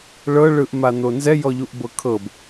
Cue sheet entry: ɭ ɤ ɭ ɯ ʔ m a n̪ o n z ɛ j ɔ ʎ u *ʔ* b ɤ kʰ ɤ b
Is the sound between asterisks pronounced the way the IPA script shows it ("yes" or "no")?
yes